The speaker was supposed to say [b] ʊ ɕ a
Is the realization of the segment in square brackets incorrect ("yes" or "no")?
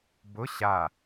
no